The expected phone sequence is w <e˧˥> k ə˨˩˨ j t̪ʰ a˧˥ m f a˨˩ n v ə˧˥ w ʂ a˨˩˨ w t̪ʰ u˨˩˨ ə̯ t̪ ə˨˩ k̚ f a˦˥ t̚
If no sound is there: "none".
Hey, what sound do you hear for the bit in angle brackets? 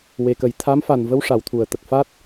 e˨˩˨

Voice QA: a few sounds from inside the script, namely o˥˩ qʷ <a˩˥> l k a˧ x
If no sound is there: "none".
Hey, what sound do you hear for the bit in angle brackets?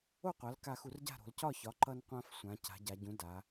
a˩˥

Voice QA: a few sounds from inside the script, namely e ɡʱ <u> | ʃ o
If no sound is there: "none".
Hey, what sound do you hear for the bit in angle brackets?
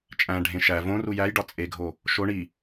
o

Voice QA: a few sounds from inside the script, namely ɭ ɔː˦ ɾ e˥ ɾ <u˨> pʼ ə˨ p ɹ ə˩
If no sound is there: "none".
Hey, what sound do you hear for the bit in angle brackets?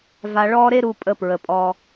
u˨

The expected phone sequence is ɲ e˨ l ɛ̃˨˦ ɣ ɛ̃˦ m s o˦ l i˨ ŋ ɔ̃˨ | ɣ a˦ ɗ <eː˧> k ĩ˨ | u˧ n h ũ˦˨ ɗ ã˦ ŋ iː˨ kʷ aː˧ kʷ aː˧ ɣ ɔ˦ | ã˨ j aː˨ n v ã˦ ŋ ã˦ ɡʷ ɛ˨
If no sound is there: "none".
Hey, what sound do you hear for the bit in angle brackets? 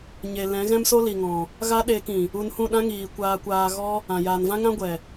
eː˧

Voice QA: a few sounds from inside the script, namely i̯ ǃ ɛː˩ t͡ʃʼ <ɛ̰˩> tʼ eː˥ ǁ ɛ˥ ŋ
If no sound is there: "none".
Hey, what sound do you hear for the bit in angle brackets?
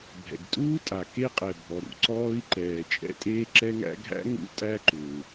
ɛ̰˥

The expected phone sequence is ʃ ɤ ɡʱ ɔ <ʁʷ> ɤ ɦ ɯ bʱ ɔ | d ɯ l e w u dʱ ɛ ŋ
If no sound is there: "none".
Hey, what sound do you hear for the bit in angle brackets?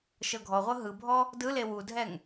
ʁʷ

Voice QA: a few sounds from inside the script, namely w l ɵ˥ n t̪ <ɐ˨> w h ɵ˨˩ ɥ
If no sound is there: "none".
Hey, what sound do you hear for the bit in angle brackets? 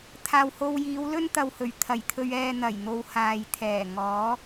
ɐ˨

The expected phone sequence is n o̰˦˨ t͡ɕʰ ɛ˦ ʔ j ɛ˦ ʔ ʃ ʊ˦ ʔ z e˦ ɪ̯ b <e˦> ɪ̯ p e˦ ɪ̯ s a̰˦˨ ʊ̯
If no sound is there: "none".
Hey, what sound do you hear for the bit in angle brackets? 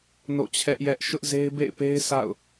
ḛ˦˨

